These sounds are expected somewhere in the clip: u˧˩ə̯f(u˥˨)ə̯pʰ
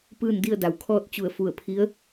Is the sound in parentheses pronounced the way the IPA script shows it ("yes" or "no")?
no